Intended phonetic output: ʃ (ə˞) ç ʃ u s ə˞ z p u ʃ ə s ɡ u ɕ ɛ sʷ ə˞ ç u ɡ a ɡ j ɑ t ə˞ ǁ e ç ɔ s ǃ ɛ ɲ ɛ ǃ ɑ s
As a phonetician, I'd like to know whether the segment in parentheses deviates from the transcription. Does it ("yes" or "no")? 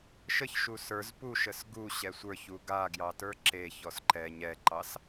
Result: yes